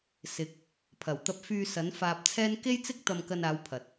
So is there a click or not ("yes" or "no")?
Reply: no